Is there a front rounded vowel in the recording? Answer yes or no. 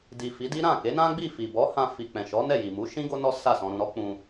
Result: no